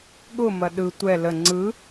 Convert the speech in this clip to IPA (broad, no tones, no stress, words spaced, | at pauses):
ɠʊmɐ ɗɯ tʷɛ lə ŋ͡ǀɯ